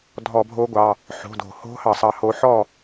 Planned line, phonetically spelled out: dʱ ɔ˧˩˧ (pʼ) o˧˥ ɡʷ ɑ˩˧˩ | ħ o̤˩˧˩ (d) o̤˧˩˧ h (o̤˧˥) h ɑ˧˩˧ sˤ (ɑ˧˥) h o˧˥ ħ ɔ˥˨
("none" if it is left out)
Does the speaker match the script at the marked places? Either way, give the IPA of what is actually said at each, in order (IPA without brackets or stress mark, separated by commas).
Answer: bʱ, d, o̤˧˥, ɑ˧˥